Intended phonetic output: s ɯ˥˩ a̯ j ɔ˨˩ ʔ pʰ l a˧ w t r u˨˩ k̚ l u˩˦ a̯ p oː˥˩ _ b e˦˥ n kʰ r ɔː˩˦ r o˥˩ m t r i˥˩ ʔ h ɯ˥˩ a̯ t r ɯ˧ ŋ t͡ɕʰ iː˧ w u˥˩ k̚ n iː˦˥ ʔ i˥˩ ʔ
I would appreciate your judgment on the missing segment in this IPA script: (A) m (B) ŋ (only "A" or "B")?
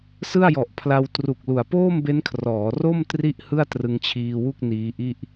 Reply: A